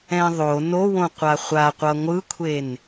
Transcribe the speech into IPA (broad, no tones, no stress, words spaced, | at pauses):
ɛ̃ðˤo nowõqʷa χʷaqʷʌ ŋʷɯkʷʰen